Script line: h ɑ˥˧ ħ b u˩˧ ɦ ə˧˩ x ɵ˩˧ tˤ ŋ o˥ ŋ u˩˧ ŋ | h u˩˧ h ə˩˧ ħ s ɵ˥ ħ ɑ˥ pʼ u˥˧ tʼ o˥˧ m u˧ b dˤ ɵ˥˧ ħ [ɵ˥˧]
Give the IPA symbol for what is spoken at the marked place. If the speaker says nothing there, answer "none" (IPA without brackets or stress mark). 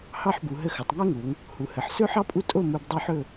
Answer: ɵ˥˧